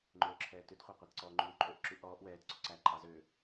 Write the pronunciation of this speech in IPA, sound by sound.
ŋ͡ǃ øː ǁʰ ɛː t ʉ d χʷ æ qʷ ɑ t ǀ ɔː ŋ͡ǃ y w ǃʼ ø ʔ ǁ y ʔ ɔː ʔ w ɛː t ǀ ɵ ǀ æː ǃʼ ɑ z ø

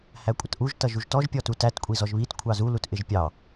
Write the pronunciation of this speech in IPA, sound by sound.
h æ kʷʼ ʌ t ʔ u ʒ t ʌ ʒ u ʒ t ɔ ʒ pʲ ɔ t u t æ t kʷʼ i z ɔ ʒ β i t kʷʰ ɑ z u l u t ʔ ɪ ʒ pʲ ɑ

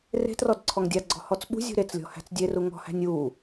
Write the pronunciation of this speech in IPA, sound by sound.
r e̤ t r ɔ d ǀʰ ɔ ŋ dʲ a ɡ͡ǀ ɔ̤ h ɔ t͡s ɓ ṳ zʲ ṳ ɾ e t͡s lʲ ɔ̤ h æ̤ t͡s dʲ e r u ŋ ɔ̤ h æ̤ nʲ u

